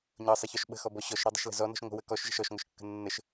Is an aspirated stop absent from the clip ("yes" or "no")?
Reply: yes